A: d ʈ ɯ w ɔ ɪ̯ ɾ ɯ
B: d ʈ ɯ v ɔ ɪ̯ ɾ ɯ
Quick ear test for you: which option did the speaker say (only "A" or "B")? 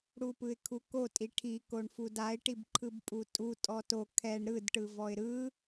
B